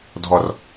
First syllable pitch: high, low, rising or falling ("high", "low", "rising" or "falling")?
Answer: low